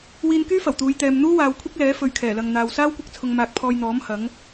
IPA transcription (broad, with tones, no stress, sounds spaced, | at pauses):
w iː˧ n k yː˥ f ɐ˨˩ w t̪ uː˨˧ j t̪ ɛː˨ m n̪ uː˥ w aː˨ w kʷʰ ɐ˥ k̚ l ɛː˨˥ f ɵ˨ ɥ kʰ ɛː˨˩ l ɐ˨ ŋ n̪ aː˨ w s aː˥ w kʷ ɐ˥ k̚ t͡sʰ ʊ˧ ŋ m aː˧ k̚ pʰ ɔː˧ j n̪ ɔː˨˥ m h ɐ˨˥ ŋ